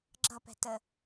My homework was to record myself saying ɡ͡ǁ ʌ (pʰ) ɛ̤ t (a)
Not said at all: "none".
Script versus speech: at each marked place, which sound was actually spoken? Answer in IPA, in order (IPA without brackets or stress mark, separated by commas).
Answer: p, ə